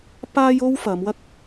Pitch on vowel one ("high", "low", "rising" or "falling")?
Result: high